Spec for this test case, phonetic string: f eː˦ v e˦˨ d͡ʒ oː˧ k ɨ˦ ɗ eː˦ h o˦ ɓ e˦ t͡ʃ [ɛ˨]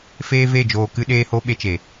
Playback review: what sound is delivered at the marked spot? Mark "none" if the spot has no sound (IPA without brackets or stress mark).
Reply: e˨